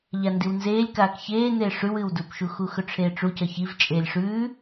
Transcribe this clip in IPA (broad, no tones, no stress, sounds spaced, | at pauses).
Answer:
ʎ a n d i w n z eː lʲ k aː k ç eː n eː ʂ ʉ w ɨ w d u p ʃ u x u x ɵ ʈ͡ʂʰ eː ʈ͡ʂ u c ɐ ç i v t͡ʃʼ eː lʲ ʂ ʉː